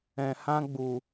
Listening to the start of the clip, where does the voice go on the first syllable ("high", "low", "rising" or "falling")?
low